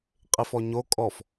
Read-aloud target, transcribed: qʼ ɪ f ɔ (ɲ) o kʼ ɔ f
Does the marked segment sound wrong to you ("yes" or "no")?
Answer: no